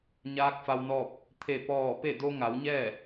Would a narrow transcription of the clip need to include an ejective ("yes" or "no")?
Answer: no